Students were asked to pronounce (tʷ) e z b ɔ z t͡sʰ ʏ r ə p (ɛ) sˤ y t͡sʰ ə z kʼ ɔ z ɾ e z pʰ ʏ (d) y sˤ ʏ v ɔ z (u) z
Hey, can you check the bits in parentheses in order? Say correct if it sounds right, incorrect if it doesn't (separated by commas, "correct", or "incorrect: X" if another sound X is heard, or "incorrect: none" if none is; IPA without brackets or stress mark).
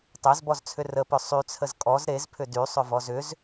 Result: incorrect: tˤ, incorrect: ʏ, correct, incorrect: ʏ